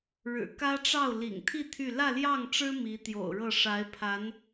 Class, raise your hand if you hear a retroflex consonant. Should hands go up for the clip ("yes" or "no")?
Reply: yes